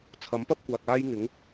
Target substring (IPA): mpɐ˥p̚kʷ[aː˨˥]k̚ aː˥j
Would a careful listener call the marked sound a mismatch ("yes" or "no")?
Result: yes